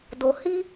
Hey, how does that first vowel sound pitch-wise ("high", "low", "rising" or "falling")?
low